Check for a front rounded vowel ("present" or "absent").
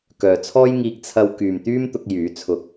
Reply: present